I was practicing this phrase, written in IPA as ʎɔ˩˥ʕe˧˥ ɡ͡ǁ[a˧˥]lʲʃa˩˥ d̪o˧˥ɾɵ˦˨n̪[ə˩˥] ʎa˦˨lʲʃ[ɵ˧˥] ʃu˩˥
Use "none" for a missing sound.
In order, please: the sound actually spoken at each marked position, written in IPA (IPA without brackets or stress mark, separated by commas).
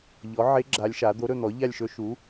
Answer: a˧˥, ɔ˩˥, ɵ˧˥